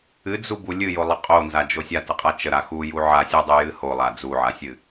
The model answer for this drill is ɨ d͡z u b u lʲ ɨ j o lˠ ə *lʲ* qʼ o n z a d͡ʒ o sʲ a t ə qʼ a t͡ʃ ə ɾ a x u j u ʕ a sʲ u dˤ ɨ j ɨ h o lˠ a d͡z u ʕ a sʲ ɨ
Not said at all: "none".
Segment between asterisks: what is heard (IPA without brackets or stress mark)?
none